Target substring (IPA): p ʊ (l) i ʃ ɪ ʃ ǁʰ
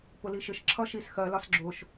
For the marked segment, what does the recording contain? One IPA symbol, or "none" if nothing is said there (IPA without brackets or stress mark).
l